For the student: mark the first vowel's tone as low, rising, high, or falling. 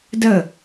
falling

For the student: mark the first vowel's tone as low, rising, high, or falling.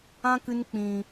high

